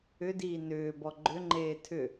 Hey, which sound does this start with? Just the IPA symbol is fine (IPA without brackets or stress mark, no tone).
ʏ